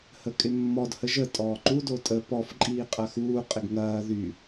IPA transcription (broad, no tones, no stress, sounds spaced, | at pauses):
h ə kʼ ɪ mː ɔ d h ə ʒ ə tʼ ɔː ǃ u d o tʼ ə p ɔ f ǃʼ iː qʼ ɐ x uː qʼ ɪ ɡ ŋ ɐː ð y